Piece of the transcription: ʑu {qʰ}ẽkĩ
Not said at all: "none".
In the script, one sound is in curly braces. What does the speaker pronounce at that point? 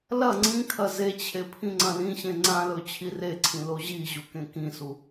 k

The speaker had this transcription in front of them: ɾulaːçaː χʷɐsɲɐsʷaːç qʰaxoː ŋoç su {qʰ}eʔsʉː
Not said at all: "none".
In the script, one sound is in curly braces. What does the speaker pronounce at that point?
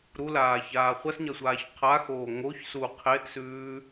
qʰ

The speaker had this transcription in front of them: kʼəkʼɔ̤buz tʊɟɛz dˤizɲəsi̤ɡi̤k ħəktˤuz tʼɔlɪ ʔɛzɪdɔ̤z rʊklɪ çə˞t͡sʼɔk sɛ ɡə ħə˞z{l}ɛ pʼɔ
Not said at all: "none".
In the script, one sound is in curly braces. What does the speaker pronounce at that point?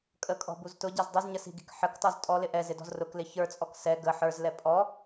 l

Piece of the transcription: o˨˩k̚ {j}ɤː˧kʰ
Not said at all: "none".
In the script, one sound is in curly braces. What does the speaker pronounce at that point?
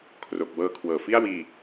w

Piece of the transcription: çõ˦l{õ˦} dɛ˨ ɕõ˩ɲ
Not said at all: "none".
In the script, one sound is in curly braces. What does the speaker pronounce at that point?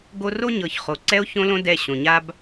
õ˦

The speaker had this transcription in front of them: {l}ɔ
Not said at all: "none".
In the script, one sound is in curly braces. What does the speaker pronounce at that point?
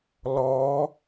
l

